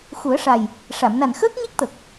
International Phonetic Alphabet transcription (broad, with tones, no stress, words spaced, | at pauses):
xu˨˩˦ə̯ʂa˨˩j | ʂa˨˩˨mna˨˩n xəː˦˥k̚ɲe˦˥k̚t̪ə˨˩k̚